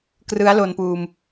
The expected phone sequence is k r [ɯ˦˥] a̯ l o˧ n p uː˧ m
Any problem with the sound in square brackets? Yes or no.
no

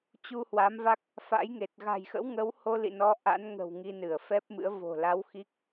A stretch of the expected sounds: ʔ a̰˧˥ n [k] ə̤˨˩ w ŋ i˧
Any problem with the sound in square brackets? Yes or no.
yes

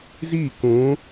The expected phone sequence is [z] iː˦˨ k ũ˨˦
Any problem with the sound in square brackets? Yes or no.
no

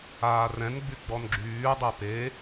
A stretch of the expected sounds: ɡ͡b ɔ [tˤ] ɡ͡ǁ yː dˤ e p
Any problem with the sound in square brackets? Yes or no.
yes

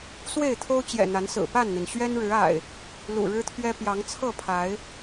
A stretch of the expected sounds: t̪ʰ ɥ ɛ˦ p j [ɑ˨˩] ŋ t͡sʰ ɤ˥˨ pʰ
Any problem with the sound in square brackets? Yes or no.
yes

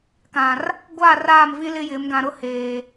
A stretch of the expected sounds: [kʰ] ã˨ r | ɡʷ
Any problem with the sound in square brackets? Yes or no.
yes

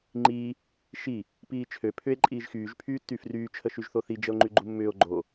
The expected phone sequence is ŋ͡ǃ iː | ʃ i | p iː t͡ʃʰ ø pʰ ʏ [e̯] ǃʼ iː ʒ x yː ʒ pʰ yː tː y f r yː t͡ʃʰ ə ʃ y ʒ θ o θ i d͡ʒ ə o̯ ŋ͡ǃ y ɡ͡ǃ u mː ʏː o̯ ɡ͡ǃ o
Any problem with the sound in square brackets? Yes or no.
no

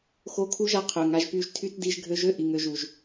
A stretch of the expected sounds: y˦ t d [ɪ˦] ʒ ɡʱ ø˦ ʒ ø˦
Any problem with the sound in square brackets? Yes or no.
yes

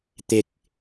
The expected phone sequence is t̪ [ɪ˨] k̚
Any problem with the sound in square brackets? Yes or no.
no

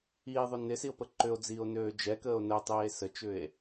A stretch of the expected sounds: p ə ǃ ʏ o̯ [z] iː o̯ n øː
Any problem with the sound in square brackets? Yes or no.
yes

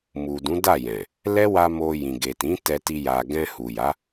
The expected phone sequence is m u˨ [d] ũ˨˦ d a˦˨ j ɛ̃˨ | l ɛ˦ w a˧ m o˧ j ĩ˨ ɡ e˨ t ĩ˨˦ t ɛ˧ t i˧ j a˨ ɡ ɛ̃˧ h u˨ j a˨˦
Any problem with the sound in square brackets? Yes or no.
no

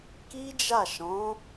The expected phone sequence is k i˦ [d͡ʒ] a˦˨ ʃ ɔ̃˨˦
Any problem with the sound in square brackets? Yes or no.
no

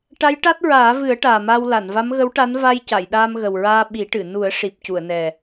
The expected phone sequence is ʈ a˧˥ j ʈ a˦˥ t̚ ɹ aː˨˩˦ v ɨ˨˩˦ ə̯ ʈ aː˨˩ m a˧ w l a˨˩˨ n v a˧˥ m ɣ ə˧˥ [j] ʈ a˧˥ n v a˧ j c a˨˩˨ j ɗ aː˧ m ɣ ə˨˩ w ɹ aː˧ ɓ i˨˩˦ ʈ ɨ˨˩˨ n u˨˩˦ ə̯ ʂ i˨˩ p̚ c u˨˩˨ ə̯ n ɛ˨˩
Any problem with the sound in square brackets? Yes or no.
yes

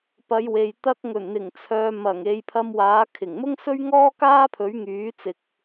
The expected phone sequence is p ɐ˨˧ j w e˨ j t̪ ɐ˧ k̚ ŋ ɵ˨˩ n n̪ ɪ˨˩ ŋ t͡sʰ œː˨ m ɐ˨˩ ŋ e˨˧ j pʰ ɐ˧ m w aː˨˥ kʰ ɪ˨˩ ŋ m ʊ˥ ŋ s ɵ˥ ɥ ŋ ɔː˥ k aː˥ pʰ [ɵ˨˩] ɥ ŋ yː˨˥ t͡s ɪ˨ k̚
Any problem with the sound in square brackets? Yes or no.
yes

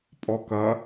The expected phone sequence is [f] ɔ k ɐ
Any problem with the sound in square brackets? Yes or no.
yes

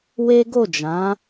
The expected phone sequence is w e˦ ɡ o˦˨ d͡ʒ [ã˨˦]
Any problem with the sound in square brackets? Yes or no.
no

